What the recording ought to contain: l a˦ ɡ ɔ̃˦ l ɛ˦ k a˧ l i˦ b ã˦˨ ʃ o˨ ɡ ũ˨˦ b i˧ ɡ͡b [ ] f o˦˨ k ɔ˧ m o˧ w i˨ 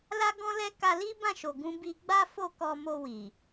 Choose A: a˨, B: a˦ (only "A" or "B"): B